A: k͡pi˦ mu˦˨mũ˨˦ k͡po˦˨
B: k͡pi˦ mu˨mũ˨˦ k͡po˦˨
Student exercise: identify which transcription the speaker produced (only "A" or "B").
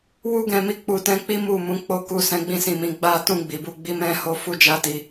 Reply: A